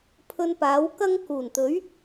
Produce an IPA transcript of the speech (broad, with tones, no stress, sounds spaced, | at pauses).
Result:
pʰ ɵ˧ n p aː˨˥ w k ɐ˥ ŋ k uː˨˩ n t̪ ɵ˨˥ ɥ